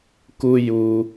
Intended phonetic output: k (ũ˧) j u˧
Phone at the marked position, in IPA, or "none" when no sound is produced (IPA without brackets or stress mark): u˧